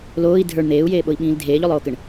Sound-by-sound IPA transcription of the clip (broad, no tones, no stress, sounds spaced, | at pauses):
l oː i̯ dʱ ə˞ ɳ n̪ eː u̯ j eː ɓ o i̯ ɓ ĩː l dʱ eː ʎ o lˠ oː k ə ɳ